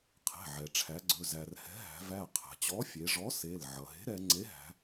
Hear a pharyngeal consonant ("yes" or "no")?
yes